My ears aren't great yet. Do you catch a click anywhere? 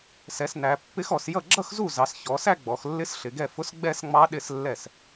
yes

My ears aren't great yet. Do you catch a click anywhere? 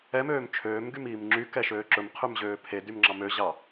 yes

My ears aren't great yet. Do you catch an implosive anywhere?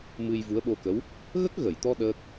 yes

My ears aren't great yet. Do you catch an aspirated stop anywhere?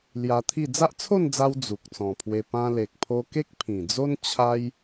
yes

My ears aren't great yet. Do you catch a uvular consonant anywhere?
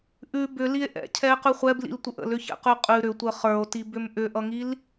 yes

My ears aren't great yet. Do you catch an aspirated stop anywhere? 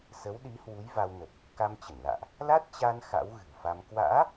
no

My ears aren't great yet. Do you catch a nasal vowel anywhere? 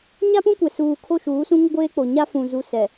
yes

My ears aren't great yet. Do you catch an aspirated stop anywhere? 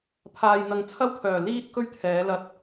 yes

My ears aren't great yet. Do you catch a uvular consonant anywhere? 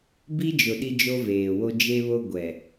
no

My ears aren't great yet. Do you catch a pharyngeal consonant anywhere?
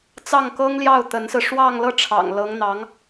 no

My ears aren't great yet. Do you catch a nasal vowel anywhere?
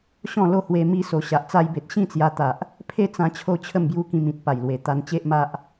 yes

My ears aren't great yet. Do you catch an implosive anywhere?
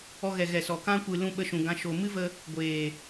yes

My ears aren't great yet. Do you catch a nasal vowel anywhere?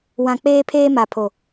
yes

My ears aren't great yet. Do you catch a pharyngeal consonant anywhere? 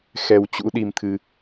no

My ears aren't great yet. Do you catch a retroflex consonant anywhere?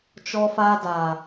no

